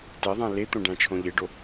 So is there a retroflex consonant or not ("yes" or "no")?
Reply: yes